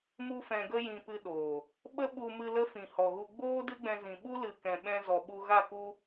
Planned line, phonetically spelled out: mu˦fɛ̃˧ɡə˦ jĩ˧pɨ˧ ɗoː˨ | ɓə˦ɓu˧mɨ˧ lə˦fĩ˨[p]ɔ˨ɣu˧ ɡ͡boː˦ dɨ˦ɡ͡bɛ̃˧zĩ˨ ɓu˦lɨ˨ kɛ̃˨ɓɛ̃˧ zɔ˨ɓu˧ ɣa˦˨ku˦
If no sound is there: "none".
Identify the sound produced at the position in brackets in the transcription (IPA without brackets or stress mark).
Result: h